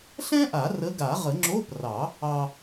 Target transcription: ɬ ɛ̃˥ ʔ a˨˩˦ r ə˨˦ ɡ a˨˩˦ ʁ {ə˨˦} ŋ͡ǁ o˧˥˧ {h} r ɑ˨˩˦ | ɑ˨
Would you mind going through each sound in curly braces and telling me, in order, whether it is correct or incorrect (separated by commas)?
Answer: incorrect, incorrect